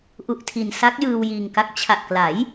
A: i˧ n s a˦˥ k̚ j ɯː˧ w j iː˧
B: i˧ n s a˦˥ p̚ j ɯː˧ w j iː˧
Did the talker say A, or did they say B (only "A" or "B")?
A